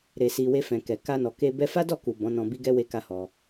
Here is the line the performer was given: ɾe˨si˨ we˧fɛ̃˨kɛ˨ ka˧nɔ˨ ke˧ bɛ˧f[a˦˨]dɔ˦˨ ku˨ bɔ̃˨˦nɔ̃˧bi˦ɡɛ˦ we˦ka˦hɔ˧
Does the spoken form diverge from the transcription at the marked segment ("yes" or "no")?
yes